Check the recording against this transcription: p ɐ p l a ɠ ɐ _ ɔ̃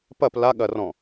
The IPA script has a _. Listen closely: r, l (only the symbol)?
r